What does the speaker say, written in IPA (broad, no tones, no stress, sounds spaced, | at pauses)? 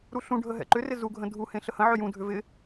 ɾ u ɬ ũ ɖʱ ə ɦ ɛ̰ ǃ ʏ r ɪ z u ɡʱ ə̃ dʱ u h ẽ ɬ ə h ə̃ ʕ ʏ j ũ dʱ ʏ v ɪ